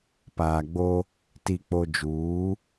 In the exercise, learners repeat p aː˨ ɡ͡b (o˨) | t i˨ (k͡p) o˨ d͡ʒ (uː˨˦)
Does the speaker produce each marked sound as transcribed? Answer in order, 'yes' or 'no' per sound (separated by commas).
no, yes, yes